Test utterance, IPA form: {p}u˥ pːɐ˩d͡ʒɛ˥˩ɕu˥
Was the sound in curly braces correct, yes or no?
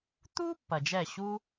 no